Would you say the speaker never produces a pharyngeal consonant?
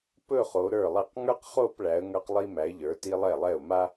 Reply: yes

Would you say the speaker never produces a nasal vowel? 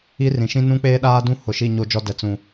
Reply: no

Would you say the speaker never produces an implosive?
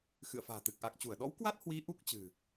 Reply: no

